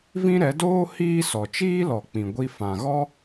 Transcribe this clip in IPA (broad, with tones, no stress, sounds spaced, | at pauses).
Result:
v ĩ˦ ɾ ɛ˨˦ d oː˦ h iː˦ s ɔ˨ t͡ʃ iː˦ l ɔ˨ k͡p ĩ˨ ɡʷ i˧ f ã˨ ɣ ɔ˦